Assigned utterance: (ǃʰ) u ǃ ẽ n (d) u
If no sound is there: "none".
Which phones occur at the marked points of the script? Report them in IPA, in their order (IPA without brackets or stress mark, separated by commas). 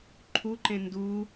ǃʰ, d